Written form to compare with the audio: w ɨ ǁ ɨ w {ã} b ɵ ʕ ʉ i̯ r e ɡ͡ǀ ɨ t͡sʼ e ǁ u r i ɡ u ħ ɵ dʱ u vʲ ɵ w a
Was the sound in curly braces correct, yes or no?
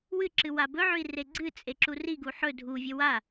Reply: no